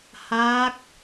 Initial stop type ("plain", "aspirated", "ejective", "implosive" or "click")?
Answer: plain